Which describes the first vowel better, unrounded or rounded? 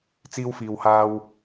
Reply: unrounded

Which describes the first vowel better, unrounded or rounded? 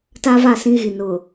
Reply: unrounded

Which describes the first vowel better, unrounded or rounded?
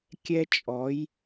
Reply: unrounded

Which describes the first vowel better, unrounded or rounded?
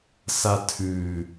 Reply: unrounded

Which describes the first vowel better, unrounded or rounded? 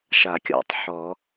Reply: unrounded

